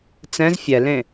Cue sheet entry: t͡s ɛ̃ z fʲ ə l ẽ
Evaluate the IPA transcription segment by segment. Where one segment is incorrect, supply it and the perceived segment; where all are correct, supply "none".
ə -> ɛ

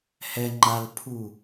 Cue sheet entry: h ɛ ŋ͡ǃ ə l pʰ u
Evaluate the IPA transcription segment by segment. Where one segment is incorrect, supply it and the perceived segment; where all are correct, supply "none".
ə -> a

